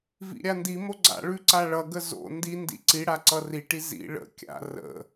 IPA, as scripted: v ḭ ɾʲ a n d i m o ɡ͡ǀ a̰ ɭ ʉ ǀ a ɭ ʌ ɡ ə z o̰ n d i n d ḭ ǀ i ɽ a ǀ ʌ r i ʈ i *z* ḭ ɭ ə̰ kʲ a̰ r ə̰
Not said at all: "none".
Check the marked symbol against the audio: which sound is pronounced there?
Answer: z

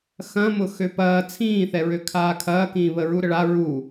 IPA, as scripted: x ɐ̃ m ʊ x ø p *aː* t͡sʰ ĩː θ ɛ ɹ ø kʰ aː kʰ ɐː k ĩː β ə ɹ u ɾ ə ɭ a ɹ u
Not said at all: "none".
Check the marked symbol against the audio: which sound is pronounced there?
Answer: ɐː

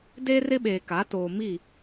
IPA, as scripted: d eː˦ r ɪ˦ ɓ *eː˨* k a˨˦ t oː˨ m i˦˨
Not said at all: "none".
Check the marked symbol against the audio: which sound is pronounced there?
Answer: eː˨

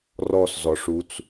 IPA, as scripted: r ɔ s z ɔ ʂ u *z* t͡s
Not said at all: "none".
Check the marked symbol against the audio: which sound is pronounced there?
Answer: none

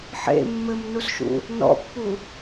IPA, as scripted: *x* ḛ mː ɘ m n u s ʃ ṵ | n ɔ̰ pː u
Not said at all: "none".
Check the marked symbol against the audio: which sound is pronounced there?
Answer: ħ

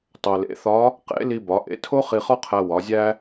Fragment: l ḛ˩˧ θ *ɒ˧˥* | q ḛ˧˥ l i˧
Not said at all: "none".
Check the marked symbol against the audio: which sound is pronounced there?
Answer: ɒ˧˥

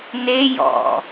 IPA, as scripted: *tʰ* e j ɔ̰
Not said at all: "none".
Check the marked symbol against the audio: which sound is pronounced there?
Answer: n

